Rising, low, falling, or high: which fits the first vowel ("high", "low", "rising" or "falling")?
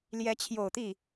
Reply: rising